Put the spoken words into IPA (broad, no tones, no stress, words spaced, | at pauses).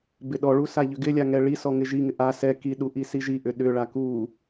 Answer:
bɪɗɔɭu saʎʏɡɪlʲa ŋɛɭisɔ ŋɪʒiŋɪ ʔa sɛ kiɗu ʔisiʒiʔʏ ɗʏɭa ku